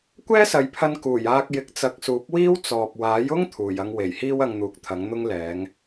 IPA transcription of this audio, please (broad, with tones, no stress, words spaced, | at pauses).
kʷɛː˥sɐ˨˧jpʰɐ˧n kuː˨˩jaː˧k̚ jɪ˨˥k̚t͡sɐ˨k̚suː˨˥p̚wiː˥w t͡sɔː˨p̚ waː˨˥jʊ˥ŋ t̪ʰuː˨˩jɐ˧ŋwe˨˩jhiː˥w ɐ˧ŋn̪uː˨k̚t̪ʰɐ˨˥ŋ n̪ʊ˥ŋ lɛː˨˥ŋ